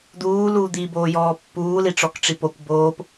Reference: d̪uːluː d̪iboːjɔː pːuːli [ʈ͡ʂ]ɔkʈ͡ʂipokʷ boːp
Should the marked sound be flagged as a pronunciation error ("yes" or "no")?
no